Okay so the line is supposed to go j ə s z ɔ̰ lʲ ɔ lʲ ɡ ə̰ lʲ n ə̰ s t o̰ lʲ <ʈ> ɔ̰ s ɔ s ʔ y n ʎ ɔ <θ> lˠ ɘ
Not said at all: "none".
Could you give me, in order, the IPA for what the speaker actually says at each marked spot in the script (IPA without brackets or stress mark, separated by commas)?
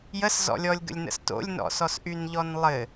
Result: n, n